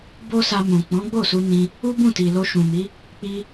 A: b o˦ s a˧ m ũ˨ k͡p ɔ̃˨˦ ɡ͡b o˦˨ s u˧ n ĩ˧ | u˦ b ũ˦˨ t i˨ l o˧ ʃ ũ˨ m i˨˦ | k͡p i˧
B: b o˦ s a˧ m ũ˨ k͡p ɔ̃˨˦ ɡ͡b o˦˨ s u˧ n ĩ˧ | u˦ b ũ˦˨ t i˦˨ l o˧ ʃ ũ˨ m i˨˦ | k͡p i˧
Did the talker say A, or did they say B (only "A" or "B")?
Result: A